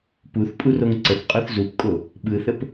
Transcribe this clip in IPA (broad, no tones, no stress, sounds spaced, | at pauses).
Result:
p u θ pʼ u r o ŋ ǀ ə θ qʼ o θ z u p kʼ o | ɓ ɯ θ ə p